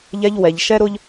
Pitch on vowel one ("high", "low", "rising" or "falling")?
high